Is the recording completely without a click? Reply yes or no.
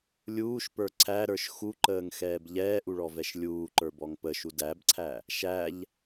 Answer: no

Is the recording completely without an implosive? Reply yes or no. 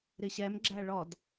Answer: yes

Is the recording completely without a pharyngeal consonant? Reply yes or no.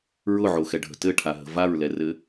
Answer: no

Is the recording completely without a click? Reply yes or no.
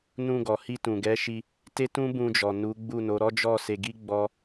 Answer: yes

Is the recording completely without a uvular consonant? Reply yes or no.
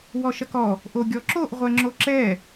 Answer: no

